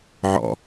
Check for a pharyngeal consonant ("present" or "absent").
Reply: present